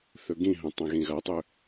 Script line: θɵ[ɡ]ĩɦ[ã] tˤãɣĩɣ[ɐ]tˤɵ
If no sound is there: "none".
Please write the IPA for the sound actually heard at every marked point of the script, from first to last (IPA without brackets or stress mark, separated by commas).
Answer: ɡ, ɐ̃, ɐ